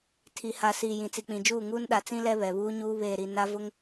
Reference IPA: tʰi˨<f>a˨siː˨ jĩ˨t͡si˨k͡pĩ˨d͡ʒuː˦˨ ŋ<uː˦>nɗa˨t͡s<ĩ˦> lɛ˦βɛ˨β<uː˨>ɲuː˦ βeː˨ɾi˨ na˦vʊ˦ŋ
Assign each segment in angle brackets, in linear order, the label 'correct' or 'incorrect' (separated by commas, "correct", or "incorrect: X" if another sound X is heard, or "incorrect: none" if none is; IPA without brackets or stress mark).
incorrect: h, correct, correct, incorrect: uː˦